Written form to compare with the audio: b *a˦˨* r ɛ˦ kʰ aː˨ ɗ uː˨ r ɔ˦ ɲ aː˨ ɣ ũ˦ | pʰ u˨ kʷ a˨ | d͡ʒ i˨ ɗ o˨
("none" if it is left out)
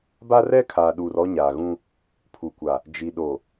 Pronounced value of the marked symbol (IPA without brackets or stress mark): a˦